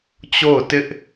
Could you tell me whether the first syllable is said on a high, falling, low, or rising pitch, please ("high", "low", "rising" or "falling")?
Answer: falling